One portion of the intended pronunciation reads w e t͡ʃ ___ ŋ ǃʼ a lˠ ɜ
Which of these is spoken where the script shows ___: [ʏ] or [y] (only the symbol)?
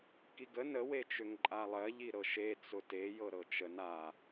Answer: ʏ